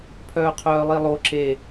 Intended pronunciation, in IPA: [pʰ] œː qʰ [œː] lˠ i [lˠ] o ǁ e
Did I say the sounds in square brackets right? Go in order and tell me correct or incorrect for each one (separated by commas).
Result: correct, correct, correct